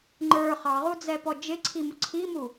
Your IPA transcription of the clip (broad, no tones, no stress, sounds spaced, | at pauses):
ŋ͡ǃ ə˞ χ ɑ ʁ u d͡z ɛ p ɔ d͡ʒ ɪ ǀʰ i m ʊ ǀʰ i m u